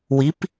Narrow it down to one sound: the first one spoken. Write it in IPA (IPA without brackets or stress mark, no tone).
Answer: w